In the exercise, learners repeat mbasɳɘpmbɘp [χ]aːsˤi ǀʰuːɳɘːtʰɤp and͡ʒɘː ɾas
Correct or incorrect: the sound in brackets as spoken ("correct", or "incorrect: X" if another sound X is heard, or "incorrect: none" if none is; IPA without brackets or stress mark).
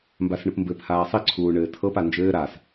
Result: incorrect: h